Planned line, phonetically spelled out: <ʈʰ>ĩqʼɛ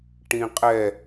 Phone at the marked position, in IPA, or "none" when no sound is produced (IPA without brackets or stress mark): ʈ